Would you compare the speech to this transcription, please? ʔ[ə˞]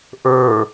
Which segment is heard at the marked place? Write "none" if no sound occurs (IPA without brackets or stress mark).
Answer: ə˞